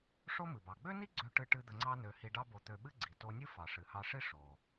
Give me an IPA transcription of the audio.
ʂ o˥ m ɨ˩ b ɑ˩ ɡ͡b ø˥ n i˥ ɡ͡ǀ ø˧ ʈ ɨ˧ ʈ ɨ˧ d̪ ə˧ ŋ͡ǀ ɑ˥ n ø˧ h i˧ ɖ ɑ˥ b o˧ t̪ ø˧ ɓ ɨ˥ ɡ͡ǀ i˩ t o˧ nʲ ɨ˥ f ɑ˩ ʂ ɨ˩ h ɑ˧ ʂ i˥ ʂ o˩

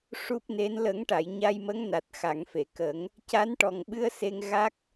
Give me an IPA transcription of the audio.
ʂ u˦˥ p̚ n e˧˥ n l ə˨˩˦ ŋ ʈ a˨˩˨ j ɲ a˧ j m ə˧˥ ŋ n a˨˩ t̚ x a˨˩˨ ŋ f e˨˩˨ k ə˨˩˦ ŋ | c a˧˥ n ʈ ɔ˨˩ ŋ ɓ ɨ˧ ə̯ s e˧ ŋ ɣ a˦˥ k̚

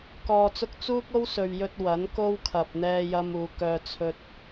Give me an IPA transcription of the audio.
k ɔː˨ t͡s ʊ˧ k̚ t͡s uː˥ k̚ o˥ w s ɵ˨ ɥ j ɵ˧ t̚ w ɐ˨˥ n k o˥ w kʰ ɐ˨ p̚ n̪ ɛː˧ j ɐ˧ m uː˨˧ k œː˧ t͡sʰ ɵ˧ t̚

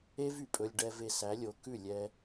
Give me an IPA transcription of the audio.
e˦ v y˨ pʼ ɵ˧ lʲ ɖ ɛ˧ v e˧ s æ˨˦ lʲ o˨˦ k ʉ˦˨ lʲ ɛ˧

